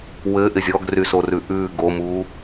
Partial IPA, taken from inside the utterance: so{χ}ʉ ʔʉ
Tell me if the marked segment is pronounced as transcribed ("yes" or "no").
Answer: no